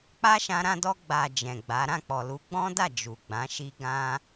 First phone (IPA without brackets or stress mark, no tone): k͡p